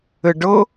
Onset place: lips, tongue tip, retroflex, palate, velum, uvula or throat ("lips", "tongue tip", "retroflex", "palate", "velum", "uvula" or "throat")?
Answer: retroflex